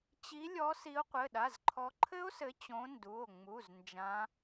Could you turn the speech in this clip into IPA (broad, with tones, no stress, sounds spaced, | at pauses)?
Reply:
t͡ɕ i˨˦ lʲ ɔ˨˦ s i˨˦ o̯ qʷ ɘ˩˧˩ ɗ a˩˧˩ z ǃʰ ɔ˨˦ ǃʰ ɘ˦˥ o̯ s ɘ˨˦ t͡ɕ õ˨˦ n d u˩˧˩ o̯ ŋ͡m u˩˧˩ z n d͡ʒ ã˨˦